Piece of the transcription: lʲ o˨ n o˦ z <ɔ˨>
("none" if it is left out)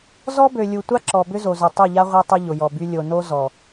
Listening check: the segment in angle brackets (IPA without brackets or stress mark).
ɔ˨